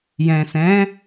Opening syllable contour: low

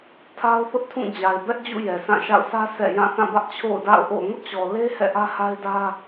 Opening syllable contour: high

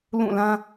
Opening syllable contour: falling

